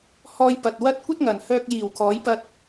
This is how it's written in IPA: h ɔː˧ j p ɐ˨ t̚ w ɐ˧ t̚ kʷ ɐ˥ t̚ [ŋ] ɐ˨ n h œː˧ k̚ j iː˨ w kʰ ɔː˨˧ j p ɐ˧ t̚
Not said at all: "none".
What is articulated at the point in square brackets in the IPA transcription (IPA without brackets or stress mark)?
ŋ